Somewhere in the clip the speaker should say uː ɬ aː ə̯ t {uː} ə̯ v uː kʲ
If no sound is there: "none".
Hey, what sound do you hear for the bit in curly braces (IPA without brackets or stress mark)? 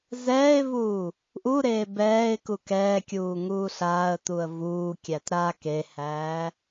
u